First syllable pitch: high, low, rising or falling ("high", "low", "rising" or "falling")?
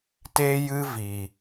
high